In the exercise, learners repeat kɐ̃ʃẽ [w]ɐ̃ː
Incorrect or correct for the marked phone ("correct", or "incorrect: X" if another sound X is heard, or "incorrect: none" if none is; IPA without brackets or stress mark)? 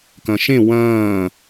correct